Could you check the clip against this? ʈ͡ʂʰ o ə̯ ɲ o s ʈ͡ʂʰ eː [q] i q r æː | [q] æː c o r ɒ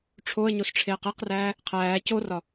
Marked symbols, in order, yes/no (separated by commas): yes, no